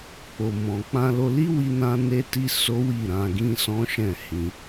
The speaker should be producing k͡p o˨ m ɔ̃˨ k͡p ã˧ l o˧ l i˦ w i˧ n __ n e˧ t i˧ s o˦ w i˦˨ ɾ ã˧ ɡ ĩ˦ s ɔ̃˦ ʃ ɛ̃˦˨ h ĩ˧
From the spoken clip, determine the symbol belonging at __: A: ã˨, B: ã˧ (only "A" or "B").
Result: B